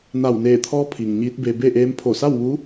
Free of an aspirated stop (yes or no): no